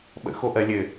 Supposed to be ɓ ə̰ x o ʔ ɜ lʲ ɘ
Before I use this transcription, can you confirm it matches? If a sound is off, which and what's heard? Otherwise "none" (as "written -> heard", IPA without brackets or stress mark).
none